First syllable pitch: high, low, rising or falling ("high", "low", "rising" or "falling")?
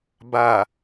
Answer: low